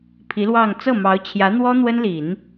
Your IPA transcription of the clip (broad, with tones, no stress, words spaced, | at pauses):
pʰi˧˥lwɑ˥˧ŋ t͡sɤ˥˩mɑ˧˥ʊ̯t͡ɕʰjä˧˥n̪wɔ˥ n̪wə˥nli˨˩˦n